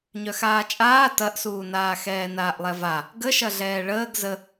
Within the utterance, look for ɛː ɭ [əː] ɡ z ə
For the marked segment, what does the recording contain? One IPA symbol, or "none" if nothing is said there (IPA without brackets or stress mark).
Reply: əː